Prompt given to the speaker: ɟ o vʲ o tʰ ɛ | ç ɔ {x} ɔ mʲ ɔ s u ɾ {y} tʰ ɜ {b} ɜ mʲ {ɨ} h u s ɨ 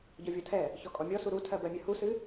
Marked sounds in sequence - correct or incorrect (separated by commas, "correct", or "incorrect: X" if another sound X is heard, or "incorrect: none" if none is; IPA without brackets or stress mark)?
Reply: incorrect: kʼ, incorrect: u, correct, correct